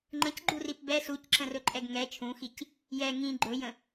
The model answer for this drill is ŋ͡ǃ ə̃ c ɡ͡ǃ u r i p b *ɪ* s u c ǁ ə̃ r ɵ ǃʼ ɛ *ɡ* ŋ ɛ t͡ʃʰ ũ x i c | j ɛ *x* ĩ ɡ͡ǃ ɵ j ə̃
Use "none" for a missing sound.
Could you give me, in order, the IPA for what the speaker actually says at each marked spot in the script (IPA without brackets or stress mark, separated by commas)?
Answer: ɛ, ɡ, ŋ